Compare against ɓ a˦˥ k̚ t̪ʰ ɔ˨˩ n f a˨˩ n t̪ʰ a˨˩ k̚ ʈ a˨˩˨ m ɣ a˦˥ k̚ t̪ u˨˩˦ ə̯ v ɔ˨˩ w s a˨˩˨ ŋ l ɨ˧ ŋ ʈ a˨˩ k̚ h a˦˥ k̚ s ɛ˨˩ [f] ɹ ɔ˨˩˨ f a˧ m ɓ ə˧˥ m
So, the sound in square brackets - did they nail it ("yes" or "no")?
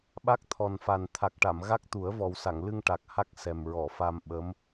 no